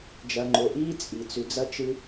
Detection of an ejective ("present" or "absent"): present